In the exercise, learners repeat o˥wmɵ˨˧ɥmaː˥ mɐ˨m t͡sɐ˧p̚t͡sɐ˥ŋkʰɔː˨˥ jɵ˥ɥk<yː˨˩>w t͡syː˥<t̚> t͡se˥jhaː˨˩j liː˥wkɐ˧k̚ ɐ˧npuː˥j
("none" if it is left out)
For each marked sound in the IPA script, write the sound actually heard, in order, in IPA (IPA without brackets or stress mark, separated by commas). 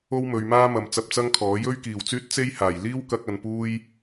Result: iː˨˩, t̚